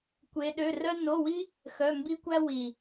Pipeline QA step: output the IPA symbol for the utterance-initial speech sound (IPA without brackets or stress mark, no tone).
kʷ